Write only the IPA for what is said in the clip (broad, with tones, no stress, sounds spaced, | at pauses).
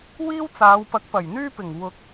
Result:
w iː˥ w t͡s aː˨˧ w p ɐ˨˥ k̚ p ɐ˨˩ j n̪ yː˥ p ɪ˨˩ ŋ w ʊ˨˥ k̚